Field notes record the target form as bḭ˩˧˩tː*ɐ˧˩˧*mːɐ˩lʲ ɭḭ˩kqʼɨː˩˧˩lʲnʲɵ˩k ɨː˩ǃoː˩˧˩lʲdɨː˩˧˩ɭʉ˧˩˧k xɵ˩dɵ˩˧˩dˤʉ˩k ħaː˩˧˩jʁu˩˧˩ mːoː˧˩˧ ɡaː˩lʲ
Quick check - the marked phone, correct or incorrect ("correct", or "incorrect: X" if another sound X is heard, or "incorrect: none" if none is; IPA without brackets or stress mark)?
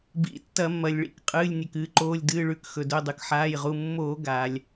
correct